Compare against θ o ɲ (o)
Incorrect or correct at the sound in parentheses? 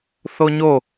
correct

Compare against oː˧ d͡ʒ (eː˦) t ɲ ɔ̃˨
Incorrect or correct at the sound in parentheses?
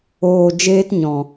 correct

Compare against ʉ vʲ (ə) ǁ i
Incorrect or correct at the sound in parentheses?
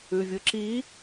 incorrect: ɯ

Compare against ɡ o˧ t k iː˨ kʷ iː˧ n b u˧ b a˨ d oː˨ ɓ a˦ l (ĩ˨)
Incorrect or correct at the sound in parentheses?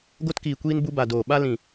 correct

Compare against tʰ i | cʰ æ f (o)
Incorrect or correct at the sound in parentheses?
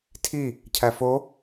correct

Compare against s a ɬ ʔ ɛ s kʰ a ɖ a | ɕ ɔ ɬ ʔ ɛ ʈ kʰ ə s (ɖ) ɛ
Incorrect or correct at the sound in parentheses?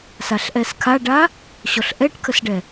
correct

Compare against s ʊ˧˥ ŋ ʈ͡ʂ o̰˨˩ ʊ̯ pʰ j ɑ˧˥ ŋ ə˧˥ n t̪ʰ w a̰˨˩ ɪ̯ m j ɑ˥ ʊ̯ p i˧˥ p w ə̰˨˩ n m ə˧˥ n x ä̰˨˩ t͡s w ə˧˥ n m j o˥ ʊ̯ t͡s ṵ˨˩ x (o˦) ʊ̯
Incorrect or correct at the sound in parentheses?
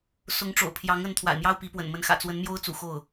incorrect: o˥˩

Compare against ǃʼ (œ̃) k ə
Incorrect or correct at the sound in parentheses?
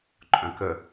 correct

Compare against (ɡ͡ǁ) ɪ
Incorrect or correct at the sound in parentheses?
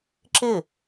incorrect: ǁ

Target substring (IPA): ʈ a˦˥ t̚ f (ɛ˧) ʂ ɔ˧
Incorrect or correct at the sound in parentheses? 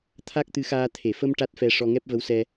correct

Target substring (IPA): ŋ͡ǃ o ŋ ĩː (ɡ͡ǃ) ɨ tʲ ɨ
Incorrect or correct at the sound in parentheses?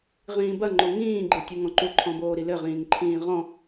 correct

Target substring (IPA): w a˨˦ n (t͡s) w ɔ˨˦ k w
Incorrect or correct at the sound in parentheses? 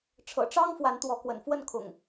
incorrect: t̪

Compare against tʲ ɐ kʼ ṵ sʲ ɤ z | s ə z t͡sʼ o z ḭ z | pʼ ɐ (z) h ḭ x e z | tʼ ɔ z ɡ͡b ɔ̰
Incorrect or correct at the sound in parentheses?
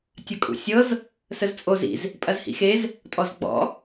correct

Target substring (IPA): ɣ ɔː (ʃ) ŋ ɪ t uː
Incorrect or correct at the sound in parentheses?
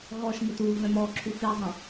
correct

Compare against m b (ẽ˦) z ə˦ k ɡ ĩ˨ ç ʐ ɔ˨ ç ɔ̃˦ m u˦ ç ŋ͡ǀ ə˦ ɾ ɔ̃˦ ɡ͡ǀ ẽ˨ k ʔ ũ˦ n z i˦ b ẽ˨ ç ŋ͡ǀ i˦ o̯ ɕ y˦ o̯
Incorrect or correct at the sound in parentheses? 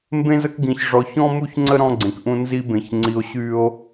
correct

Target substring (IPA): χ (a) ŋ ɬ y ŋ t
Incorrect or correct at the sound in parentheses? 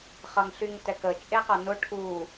incorrect: ʌ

